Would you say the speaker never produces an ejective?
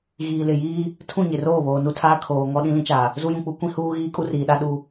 no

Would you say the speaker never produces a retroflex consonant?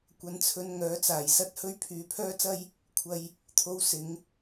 yes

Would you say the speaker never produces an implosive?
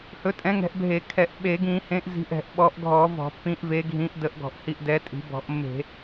no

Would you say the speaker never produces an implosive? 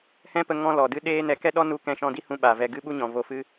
no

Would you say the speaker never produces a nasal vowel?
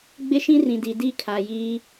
no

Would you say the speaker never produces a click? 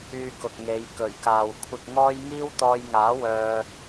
yes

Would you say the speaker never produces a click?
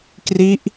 yes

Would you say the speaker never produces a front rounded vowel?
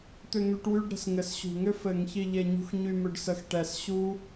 no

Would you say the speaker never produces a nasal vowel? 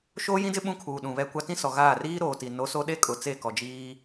no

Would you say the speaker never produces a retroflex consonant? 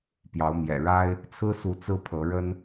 no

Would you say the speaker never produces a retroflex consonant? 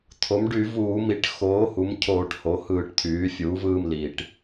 no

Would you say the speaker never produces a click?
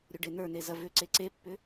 no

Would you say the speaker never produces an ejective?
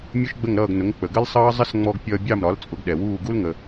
no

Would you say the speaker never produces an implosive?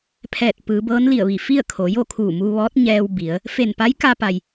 yes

